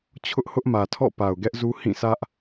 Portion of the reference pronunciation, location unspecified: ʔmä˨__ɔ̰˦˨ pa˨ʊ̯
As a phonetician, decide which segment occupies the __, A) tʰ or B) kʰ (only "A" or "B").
A